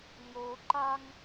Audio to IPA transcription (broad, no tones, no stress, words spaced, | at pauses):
ŋo ǃaŋ